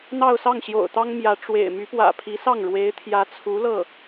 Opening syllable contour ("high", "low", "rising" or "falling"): falling